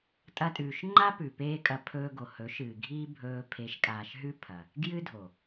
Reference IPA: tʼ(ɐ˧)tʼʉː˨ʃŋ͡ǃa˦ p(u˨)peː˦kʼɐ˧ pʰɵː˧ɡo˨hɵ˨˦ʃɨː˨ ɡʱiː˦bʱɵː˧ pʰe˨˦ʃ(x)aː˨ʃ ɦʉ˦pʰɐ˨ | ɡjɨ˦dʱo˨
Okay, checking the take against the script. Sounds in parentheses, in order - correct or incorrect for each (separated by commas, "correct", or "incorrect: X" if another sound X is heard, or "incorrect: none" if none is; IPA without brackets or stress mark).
correct, incorrect: ʉ˨, incorrect: kʼ